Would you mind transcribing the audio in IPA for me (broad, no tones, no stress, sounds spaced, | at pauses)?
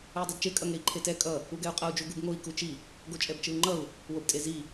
u i̯ dˤ u d t͡ʃ e kʼ ʌ ŋ e i̯ ǃʰ e t ɛ kʼ ʌ | u ɡ ɛ u̯ qʼ ʌ u̯ d͡ʒ u ɡ u b ŋ o i̯ k u t͡ʃ i | ɡ o t͡ʃʼ ɛ b t͡ʃ ɯ u̯ ŋ͡ǃ ʌ u̯ | w o b tʼ e z i